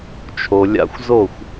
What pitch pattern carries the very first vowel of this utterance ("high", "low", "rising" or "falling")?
low